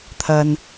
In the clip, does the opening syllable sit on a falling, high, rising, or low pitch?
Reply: low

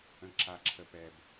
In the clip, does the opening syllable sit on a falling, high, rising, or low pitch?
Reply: low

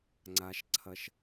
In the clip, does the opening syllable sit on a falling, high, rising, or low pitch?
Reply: low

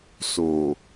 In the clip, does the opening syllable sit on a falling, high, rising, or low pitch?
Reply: low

